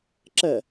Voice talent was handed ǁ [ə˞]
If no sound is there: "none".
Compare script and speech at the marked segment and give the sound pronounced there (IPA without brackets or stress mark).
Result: ɐ